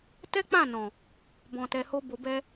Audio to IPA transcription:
t ɛ˦ k͡p ã˦˨ n ɔ̃˨ | b ɔ̃˨ t ɛ˨ h o˧ b o˨ b ɛ˧

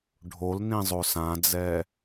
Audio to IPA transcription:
ɖʱ o l n ĩ zˤ o s ã d͡z ɛ

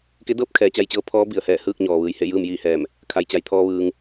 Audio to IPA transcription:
k e˧˥ d ɤː˧˥ p̚ kʰ ɛː˩˧ t͡ɕ a˧ j t͡ɕ ɤː˧˥ pʰ ɔː˧˥ b i˩ ə̯ h ɛː˧˩ h ɯː˥˨ k̚ ɲ ɔː˩ ʋ ɯː˩ j h e˥˨ j ɯː˥˨ m j iː˥˨ h ɛː˧˩ m | kʰ a˩ j t͡ɕ a˩ j t̪ʰ ɔː˧ ʋ ɯː˩ ŋ

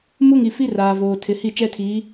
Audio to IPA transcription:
m u˦ ŋ i˨ f i˦ r aː˨ v oː˨ tʰ ɪ˨ h i˦˨ t͡ʃ ɛ˦ tʰ iː˨˦

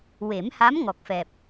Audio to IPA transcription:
w e˨˩˦ m h a˧˥ m ŋ ɔ˨˩ k̚ f ɛ˨˩ p̚

